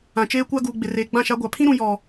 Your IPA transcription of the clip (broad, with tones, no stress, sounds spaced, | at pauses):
ã˨ t͡ʃ eː˦ kʷ a˦ ɡ uː˨ ɡ͡b ɪ˨ r eː˨ ɡ͡b ã˦˨ ʃ a˦ ɡʷ a˨ pʰ ĩ˦ ɾ ũ˨ j ɔ˨